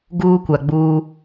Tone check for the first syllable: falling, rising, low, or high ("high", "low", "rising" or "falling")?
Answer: high